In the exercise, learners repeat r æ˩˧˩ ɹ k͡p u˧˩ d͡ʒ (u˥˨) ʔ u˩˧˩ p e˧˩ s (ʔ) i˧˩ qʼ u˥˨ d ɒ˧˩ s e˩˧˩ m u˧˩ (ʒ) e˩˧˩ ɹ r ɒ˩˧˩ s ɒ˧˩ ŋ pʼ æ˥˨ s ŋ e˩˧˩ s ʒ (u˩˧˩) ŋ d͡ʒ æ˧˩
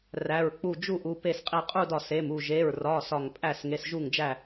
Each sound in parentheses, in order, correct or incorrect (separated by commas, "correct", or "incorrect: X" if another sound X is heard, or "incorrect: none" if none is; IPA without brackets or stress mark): correct, incorrect: qʼ, correct, incorrect: u˧˩